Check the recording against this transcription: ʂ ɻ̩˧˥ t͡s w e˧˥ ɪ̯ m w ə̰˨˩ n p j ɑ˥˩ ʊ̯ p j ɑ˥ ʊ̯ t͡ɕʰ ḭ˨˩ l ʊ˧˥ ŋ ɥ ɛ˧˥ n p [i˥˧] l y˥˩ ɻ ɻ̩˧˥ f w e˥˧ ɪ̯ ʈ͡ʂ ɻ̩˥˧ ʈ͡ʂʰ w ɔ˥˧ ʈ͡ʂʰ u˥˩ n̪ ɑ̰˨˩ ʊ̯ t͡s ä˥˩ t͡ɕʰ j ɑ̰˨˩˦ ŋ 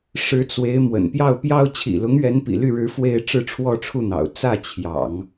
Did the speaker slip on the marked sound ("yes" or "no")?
yes